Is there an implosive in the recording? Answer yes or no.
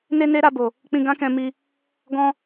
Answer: no